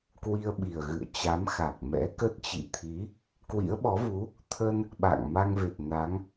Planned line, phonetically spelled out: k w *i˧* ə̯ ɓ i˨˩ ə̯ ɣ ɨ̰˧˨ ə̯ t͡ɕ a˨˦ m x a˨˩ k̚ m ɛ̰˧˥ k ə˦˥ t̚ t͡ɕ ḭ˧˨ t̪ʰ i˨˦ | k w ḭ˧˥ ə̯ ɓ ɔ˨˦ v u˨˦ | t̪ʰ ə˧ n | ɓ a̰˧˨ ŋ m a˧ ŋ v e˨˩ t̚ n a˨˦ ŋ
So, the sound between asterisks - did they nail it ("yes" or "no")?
yes